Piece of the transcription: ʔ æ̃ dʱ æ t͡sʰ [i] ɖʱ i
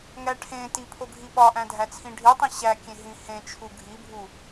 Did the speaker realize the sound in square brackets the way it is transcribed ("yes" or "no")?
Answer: no